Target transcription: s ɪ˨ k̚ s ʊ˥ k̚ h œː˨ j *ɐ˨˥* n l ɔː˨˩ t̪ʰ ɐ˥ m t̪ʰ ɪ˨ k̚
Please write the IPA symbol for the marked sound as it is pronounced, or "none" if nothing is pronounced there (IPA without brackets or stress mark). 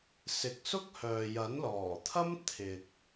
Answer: ɐ˨˥